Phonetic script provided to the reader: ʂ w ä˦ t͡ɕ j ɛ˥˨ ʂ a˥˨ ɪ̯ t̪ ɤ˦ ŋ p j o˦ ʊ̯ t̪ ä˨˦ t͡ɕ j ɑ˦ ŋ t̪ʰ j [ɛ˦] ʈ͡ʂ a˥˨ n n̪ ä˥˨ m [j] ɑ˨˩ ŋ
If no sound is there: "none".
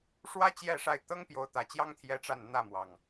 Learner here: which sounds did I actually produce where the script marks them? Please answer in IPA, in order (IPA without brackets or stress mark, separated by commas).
ɛ˦, w